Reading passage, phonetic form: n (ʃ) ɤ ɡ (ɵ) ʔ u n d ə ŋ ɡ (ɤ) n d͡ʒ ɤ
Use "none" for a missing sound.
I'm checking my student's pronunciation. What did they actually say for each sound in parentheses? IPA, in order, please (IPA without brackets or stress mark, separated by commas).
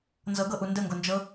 z, ɤ, o